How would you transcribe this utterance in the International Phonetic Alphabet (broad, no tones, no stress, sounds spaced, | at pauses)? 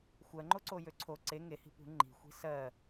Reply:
xʷ ɜ ŋ͡ǃ o ǀ o j ø ǀʰ o ǀ e ŋ e h i̤ p ṳ ŋ͡ǃ i̤ xʷ i̤ s ɜ